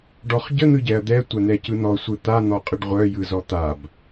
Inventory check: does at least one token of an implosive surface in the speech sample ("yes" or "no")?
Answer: no